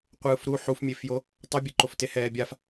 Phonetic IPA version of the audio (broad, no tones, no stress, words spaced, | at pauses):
qʷɯːfɾu ħufmʲefjo | tˤʌbʲɯǃofte hɛːbʲaf